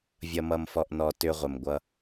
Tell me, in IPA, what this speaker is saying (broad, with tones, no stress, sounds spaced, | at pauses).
vʲ ʌ˧ m ʌ˧ m f ɔ˧ ʔ n ɔ˧ t ʏ˧ ʁʷ ə˨ m ɡʷ ʌ˧